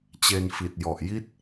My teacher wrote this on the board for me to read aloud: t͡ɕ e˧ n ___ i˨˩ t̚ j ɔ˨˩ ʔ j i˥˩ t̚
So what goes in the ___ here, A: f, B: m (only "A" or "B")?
A